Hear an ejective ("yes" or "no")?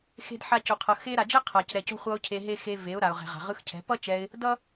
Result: no